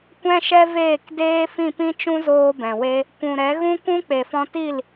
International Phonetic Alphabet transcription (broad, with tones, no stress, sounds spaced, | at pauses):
kʷ ɛ̃˦ ʃ ɛ˦ v eː˦˨ k d eː˦ f ĩ˦˨ p ĩ˦ t͡ʃ ũ˦ z oː˧ b ɛ̃˨ w e˦ | kʷ ũ˨ ɾ ɛ˨˦ ɣ ũ˦ kʷ ũ˦ k͡p e˨ f ɔ̃˧ t i˦˨ l